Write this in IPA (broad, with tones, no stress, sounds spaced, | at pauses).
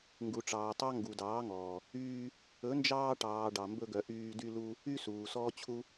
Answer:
ŋ ɡ u˨ ʈ͡ʂ ɑː˨ tˤ ɑ˦ ŋ ɡ u˨ d ɑː˨˦ ŋ ɔː˨ | yː˧ | ɵ˨˦ n d͡ʒ ɑː˧ ʈ ɑː˨ ɖ ɑ˨ m b ɵ˧ ɡ œ˨ ʔ yː˧ d y˧ l u˧ | y˧ s uː˨ s ɔː˦ t͡ɕʰ u˦